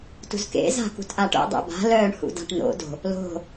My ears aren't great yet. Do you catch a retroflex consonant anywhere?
yes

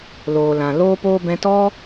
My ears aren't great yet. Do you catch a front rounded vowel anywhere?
no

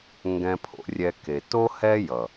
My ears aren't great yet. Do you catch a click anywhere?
no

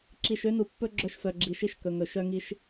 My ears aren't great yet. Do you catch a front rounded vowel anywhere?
yes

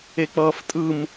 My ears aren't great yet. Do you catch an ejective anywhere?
yes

